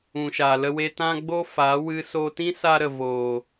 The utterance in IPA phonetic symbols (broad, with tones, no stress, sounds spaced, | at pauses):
ũ˨ ʃ a˨ l ə˧ w e˧ t ã˦ ɡ͡b o˦ f a˨˦ w ɨ˧ s o˧ t ĩ˦ s a˦ ɾ ə˨ v oː˨